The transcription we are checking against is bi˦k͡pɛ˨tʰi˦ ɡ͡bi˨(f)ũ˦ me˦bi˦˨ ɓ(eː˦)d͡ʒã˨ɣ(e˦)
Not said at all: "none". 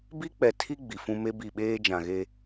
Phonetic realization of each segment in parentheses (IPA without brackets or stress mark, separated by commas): f, eː˦, e˦